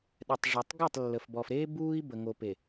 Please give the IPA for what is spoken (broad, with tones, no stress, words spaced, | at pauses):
ɗɛ˨tˤʐœ˨tˤ ɡœ˦˨tˤlːə˨fbɔ˨fɾeː˦ buː˦i̯bə˨ ŋo˨pe˨